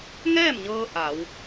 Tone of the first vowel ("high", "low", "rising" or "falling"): falling